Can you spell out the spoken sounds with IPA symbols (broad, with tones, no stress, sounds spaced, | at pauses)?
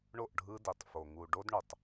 ɳ o˦˨ ʔ ɖʱ ɯ˦ d i˨ tˤ f o˨ ŋ u˨ ɖ o˦ d ɳ u˨ tˤ